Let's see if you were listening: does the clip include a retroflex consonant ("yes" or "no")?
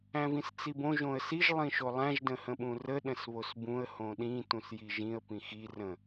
no